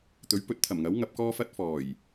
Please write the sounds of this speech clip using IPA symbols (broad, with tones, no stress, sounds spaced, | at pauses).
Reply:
t̪ ɵ˨˥ ɥ p ɵ˨˥ t̚ t̪ʰ ɐ˨˩ m ŋ ɐ˨˥ w ŋ ɐ˨˥ p̚ k ɔː˥ f ɐ˥ t̚ f ɔː˨˩ j